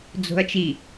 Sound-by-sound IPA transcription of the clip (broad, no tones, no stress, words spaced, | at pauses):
d͡zo̤ɐ̯t͡ʃi